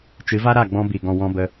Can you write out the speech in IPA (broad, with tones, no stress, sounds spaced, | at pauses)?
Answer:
t͡ʃ ɨ˨˦ v a˦ ɾ a˦˨ ɡ͡b ɔ̃˧ b i˨ ɡ ɔ̃˨ w ɔ̃˧ b ə˧